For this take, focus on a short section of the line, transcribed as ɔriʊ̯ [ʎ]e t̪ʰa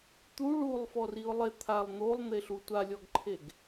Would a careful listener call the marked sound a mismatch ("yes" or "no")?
yes